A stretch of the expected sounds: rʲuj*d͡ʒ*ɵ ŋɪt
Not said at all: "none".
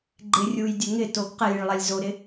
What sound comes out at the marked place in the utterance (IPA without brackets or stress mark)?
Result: dʲ